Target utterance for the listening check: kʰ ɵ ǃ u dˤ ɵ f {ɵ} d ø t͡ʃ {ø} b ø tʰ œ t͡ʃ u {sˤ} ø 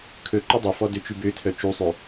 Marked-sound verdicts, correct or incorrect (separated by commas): incorrect, incorrect, correct